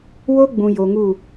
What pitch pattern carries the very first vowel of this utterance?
high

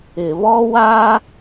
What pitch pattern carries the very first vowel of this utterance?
low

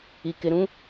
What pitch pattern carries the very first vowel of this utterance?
low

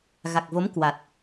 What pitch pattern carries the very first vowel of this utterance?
low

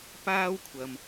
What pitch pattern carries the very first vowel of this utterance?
high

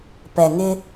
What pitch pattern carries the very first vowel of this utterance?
low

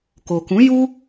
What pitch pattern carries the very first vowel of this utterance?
low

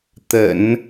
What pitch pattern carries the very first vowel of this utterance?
low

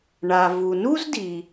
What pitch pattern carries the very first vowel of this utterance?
low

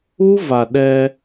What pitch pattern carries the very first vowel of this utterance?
high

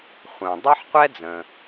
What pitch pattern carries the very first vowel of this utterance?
low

